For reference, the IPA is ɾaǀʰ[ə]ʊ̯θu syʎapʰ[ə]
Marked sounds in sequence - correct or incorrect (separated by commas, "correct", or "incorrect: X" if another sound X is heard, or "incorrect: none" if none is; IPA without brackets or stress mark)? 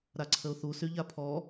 correct, incorrect: ɔ